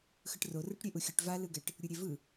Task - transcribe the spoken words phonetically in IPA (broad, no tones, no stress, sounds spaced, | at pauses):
x ɯ ʈ r o r ɯ ʈ ɾʲ e ʔ u xʲ ɯ ʈ v a l ɯ ɡ ɛ ʈ | ɾʲ u ɾʲ e v ɯ